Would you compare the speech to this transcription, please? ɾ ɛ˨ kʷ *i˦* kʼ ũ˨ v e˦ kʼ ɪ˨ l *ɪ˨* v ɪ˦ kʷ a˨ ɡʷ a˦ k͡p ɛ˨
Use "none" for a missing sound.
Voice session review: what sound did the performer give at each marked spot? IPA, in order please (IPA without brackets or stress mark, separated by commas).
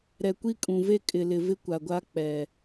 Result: i˦, ɪ˨